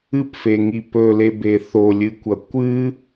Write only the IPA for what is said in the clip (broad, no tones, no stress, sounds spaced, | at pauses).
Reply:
ɨ p f e ŋ i p ɵ l e b e θ o lʲ ɨ kʷ ɐ kʷ ɨ